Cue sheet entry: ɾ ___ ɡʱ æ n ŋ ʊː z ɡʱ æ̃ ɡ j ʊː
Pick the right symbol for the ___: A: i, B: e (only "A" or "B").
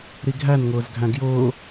A